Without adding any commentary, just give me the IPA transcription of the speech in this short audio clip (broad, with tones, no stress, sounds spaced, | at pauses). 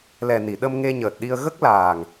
l ɛ˨˩ n i˨˩˨ ɗ ə˧ m ŋ e˧ ɲ əː˨˩ t̚ ɗ i˧ ə̯ ɣ ə˦˥ k̚ l aː˨˩ ŋ